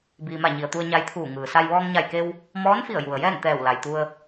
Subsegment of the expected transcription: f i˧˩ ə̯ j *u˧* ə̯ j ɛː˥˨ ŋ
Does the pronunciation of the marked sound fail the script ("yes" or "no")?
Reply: yes